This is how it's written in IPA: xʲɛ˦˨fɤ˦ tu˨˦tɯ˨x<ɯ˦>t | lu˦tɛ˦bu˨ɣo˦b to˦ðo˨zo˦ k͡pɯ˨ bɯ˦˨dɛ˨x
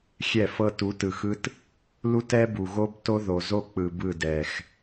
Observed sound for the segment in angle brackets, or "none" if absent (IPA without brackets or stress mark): ɯ˦